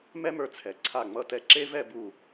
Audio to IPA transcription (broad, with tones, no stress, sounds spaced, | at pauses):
m ɛ˥ m ə˞˧ t͡sʰ ɛ˩˧ ǀʰ a˧˩ ŋ͡m ʌ˧˩ t ɛ˧˩ ǁ e˥ v ɛ˥˧ b u˧˩